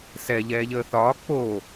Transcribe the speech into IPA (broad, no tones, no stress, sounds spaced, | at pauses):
s ɛ ʎ ɛː ʎ əː θ ɒː k͡p o